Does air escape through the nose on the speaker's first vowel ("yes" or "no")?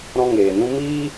yes